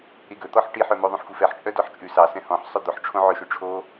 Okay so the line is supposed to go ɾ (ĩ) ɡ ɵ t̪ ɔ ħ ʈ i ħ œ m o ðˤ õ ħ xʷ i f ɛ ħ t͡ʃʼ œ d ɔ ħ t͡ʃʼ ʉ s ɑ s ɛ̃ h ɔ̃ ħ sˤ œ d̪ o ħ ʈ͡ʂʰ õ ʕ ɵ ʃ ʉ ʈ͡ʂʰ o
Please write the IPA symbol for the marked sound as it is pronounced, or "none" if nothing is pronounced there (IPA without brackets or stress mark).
i